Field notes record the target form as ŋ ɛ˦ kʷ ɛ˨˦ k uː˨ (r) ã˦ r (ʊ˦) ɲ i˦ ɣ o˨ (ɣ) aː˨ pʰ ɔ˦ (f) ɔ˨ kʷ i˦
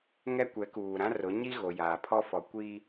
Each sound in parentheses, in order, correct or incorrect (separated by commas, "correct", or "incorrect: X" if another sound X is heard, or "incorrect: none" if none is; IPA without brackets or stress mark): incorrect: ɾ, incorrect: ʊ˨˦, incorrect: j, correct